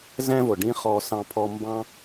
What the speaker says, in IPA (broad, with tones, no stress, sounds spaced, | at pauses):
z ɛ̃˦ v ʊ˨ ɖ ĩ˦ χ ɔ˧ s ɑ̃˧ pʰ ɔ˧ m b ɑ̃˦